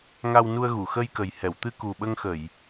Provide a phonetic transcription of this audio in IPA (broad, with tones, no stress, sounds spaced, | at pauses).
ŋ a˧ w n u˧ ə̯ ɣ u˨˩˨ x ə˧ j k ə˨˩ j h ɛ˨˩˨ w t̪ ɨ˧ k u˨˩ ɓ ə˧ ŋ x ə˨˩˨ j